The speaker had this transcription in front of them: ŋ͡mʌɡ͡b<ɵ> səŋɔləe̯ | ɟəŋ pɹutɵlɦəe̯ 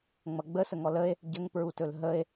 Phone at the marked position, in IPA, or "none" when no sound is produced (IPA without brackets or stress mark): ə